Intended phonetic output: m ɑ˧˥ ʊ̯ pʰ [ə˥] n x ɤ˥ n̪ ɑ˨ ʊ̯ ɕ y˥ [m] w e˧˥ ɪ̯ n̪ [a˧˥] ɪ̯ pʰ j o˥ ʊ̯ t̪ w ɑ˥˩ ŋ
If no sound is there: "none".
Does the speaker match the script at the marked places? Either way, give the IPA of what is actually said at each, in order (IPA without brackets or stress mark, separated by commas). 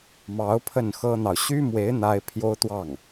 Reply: ə˥˩, m, a˥